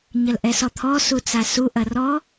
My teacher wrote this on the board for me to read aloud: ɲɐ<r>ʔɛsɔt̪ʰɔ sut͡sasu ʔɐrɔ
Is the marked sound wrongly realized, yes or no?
yes